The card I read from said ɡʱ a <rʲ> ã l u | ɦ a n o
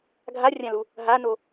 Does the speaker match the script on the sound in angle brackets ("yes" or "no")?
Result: yes